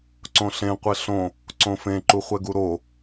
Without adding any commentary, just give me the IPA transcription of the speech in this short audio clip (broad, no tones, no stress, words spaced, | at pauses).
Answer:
ǀõɬẽ qʷeɬõ | ǀõfẽ ǃuχʷɛɡuɾo